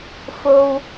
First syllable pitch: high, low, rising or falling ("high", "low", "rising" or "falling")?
high